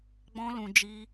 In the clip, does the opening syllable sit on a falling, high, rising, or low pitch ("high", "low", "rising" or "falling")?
high